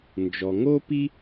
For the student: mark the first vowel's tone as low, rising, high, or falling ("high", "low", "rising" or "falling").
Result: low